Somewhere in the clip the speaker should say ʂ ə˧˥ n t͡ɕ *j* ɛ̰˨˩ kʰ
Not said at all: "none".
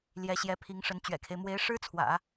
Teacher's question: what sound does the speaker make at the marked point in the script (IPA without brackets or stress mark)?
ɥ